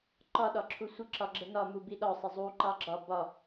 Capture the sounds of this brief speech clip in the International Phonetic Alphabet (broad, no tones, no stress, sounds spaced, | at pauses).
ǃ ɒ ɗ ɒ ǁʰ u sʷ ə ǁ ɒ ɡ͡ǁ ə n ɒ m u b i ɗ ɒ sˤ ɪ zˤ u ǃ ɑ ɡ͡ǁ ɒ b ɒ